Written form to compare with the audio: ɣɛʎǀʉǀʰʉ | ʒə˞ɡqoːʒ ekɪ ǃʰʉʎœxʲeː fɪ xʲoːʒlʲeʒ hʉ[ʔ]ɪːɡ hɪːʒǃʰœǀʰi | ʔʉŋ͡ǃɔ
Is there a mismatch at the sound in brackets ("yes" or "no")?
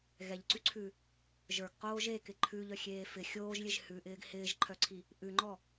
no